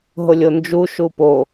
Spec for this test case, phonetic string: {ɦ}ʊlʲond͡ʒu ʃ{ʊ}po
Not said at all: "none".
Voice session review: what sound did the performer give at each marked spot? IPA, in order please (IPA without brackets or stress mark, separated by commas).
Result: ɦ, u